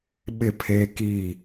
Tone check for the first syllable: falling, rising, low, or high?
falling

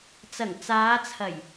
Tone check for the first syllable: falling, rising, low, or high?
low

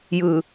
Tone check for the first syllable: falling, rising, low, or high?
low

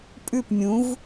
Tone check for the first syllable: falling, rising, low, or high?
falling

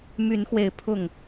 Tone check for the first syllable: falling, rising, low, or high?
rising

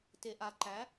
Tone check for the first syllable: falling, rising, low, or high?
low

